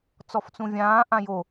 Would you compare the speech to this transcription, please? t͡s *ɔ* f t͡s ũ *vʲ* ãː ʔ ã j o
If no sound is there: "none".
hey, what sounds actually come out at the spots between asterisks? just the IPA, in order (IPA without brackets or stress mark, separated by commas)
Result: ɔ, vʲ